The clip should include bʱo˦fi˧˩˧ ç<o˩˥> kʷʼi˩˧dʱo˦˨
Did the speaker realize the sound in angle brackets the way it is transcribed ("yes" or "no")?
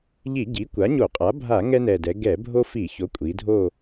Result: yes